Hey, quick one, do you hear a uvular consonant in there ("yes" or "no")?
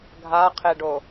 yes